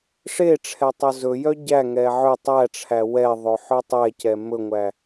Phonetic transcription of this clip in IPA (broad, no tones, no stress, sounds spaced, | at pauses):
ʂ e ʈ͡ʂʰ ɛ tˤ ɵ z ɵ j œ ɟ æ ŋ ɛ ʕ ø tˤ æ ʈ͡ʂʰ æ w ɛ ðˤ ɵ ħ ø tˤ ɛ c ɛ m ɵ ŋʷ æ